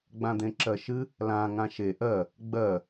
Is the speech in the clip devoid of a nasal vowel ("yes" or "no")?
no